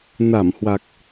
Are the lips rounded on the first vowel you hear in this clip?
no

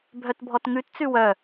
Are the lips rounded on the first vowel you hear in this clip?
yes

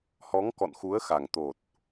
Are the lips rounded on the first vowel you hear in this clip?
yes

